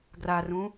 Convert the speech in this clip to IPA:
ɡ r a r ũ

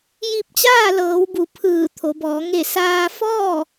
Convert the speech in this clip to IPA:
j i˧ p̚ t͡ɕ aː˥˨ l ɤː˩˧ w b u˩˧ pʰ ɯː˧˩ t̪ʰ o˩˧ b ɔː˩˧ ŋ e˧˩ s aː˧ f ɔː˥˨

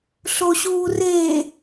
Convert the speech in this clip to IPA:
ɬ o ɕ uː r eː

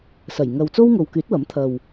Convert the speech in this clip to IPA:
s ɐ˨˩ j ŋ ɐ˨ w t͡s o˥ w ŋ o˨ w k yː˨˥ t̚ w ɐ˨˥ m t̪ʰ ɐ˨ w

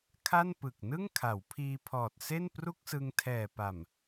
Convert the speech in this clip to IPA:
kʰ a˥˩ n p ɯ˨˩ k̚ n ɯ˥˩ ŋ kʰ a˩˦ w pʰ iː˧ pʰ ɔː˨˩ t̚ s e˥˩ n p r u˥˩ k̚ s ɯ˧ ŋ tʰ ɛː˨˩ p a˨˩ m

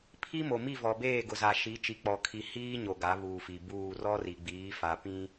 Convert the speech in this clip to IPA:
pʰ i˦ m o˨ m i˦˨ v ɔ˨ b eː˦˨ ɡ ʊ˨ z a˨ ʃ i˨˦ t͡ʃ i˨ k͡p ɔ˨ kʰ i˨ h iː˦ ɲ o˨ ɡ a˨˦ β uː˨ f i˨ b uː˦˨ r ɔ˦ r i˨ ɡ͡b iː˨˦ f a˨ p ĩ˦

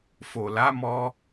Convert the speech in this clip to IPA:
f o˨ l a˨˦ m ɔ˧

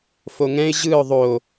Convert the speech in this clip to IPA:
f o ŋ ɛ̃ ɪ̯ ʑ ɯ ʊ̯ ðˤ o

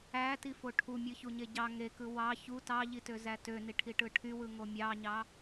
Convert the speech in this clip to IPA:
æ t i f o ʈʰ u mʲ ɯ ç u ɲ e ɟ ɑ ŋ e k ɯ w ɑ ç u t ɑ ʎ i t ø z æ t ø n i ʈʰ i ʈ ɯ ʈʰ y w ɯ ŋ o mʲ ɑ ɲ ɑ

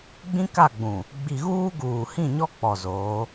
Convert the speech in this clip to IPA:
ɡ͡b ĩ˦ k a˦˨ ɡ͡b ũ˨ | ɡ͡b i˨ ɣ uː˦ ɡ uː˨ h ĩ˦˨ ɲ ɔ˦ k͡p ɔ˨ z oː˨˦

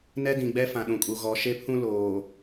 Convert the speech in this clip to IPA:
n ɛ˦ d ĩ˨ ɡ͡b ɛ˦ f ã˨ ɗ ũ˨ kʼ u˨ ɣ ɔ˨ ʃ e˦ pʰ ũ˦ l oː˨

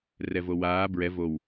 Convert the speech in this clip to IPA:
r ɛ v o w aː b ɹ ɛ v o w

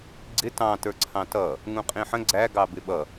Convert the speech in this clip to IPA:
ɡ͡ǀ ɪ t ɑ̃ t ə˞ ǀʰ ɑ̃ t ʌ | ŋ ũ qʼ ĩ ħ ə̃ ɡ͡ǀ æ ɡ ɑ b ɪ ɓ ʌ

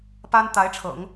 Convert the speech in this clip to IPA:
p a˥ n t̪ a˧˥ ɪ̯ ʈ͡ʂʰ ɤ̰˨˩˦ ŋ

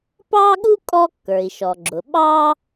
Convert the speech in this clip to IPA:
p ɑ˥ ɠ u˥ kʼ ɔ˥ kː ə˞˩ i̯ ʃ ɔ˩ ɡ͡ǁ ʊ˩ ɓ ɑ˥

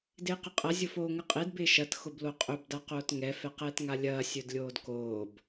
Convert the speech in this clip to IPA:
d ɪː q ɪ qʼ ɐ zʲ ʊ f oː ŋ ə qʼ e d b ɪː ʃ ɐ t x ʊ b l o qʼ ɵ b d a q oː t ŋ ɛ f ɛ q ɛː t ŋ a lʲ ɐː sʲ ɵ d lʲ oː d k oː b

